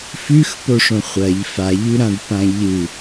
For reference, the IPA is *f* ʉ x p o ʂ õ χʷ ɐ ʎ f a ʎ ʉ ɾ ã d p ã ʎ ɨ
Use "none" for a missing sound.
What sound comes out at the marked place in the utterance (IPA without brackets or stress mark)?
f